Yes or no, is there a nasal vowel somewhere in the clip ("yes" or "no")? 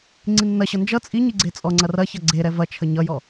no